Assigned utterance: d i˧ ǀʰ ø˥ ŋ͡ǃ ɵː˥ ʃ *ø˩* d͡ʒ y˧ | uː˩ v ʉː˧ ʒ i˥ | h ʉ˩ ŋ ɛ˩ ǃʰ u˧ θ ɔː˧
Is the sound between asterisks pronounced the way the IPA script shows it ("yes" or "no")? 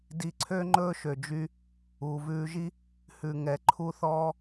yes